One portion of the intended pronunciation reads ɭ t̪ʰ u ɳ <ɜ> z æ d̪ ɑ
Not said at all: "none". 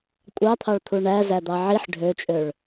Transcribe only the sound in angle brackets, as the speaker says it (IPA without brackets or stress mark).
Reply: æ